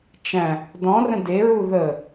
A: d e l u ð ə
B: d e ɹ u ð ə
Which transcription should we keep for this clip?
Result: B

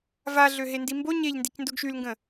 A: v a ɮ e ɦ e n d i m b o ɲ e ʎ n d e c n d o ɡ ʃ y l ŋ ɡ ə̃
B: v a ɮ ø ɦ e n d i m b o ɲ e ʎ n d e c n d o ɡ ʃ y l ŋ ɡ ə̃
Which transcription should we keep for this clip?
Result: B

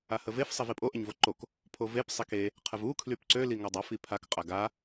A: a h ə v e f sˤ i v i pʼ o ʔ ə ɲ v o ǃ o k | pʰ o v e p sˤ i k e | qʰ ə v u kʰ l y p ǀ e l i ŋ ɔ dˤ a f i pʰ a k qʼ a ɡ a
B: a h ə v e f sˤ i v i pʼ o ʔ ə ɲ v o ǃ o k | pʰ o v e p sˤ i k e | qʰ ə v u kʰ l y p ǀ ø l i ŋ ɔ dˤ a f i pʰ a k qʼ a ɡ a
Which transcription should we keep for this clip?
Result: B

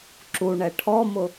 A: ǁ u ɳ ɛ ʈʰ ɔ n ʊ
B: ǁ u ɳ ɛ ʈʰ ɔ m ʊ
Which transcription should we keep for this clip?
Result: B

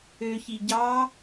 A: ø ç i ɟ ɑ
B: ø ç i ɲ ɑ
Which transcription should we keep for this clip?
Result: A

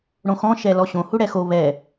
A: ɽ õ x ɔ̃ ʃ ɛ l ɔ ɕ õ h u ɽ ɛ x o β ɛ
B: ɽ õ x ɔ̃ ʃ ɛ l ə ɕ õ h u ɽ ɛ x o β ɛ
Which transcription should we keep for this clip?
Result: A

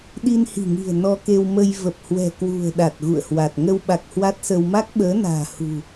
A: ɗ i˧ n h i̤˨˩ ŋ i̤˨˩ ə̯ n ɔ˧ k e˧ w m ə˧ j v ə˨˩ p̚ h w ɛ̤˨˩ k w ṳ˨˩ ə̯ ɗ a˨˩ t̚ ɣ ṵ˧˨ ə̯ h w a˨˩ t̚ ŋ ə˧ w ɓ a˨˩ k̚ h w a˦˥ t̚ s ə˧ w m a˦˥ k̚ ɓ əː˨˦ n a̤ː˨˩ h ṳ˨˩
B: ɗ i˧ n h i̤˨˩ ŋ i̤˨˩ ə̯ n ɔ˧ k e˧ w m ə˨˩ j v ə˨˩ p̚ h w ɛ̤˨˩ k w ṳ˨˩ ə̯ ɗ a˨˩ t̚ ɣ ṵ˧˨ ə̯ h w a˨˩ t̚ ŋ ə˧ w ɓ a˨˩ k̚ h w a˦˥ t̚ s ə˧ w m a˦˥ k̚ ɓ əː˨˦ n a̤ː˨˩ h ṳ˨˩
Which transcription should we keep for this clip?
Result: A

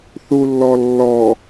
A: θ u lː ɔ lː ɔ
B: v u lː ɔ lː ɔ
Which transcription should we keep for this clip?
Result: A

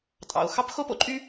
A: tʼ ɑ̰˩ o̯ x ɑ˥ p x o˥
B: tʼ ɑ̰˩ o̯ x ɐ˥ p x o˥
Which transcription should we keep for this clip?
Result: A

